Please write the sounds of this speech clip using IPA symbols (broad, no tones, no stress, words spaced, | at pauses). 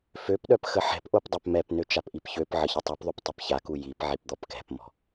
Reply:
føpɗœp xəħɛ̤pʔop dˤɛpmɛpnø t͡ʃapʔipçøpʕə çətˤypðˤyp tˤipçaku jipʕip d̪ɔpkɛ̤pmɔ̤